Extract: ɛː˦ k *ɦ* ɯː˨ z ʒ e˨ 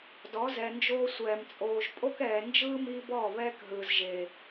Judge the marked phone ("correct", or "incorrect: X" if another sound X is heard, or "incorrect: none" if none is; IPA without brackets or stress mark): correct